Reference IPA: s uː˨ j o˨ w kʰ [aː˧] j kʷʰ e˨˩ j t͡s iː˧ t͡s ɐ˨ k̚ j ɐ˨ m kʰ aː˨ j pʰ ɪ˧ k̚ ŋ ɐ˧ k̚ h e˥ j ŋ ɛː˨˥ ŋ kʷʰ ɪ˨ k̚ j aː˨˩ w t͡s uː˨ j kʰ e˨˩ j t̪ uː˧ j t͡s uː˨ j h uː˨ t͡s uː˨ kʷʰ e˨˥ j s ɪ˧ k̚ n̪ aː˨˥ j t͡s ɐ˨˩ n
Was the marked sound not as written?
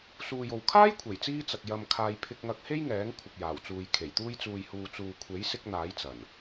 yes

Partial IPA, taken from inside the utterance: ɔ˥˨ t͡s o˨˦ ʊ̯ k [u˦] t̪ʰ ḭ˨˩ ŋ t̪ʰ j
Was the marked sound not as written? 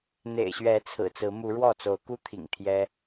no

